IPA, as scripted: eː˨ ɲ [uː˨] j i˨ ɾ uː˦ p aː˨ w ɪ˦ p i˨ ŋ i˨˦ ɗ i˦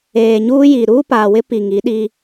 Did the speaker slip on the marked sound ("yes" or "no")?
yes